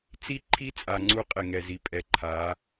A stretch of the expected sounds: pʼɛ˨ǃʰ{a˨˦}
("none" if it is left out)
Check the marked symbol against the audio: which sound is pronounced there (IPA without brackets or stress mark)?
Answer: a˨˦